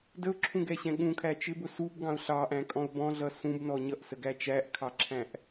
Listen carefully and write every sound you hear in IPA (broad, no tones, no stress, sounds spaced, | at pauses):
d ə ʊ̯ ǁʰ ũ ɡ ɛ ɕ ɛ̃ ɠ ũ kʰ æ t͡ʃ ɪ b ʊ s u b ɡ ɑ̃ ʊ̯ ɬ ɑ ʔ æ̃ kʼ ɔ̃ ʊ̯ b ɔ̃ ɮ ʌ s ũ b n ɔ ɲ ʌ ʔ s ə ɡ æ t͡ʃ æ ʔ kʰ ɑ ǁʰ æ̃ ʔ